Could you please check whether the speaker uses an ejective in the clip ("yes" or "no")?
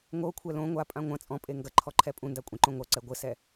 yes